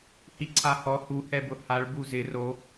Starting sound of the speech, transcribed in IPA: h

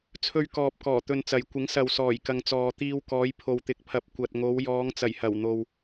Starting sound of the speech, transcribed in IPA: t͡sʰ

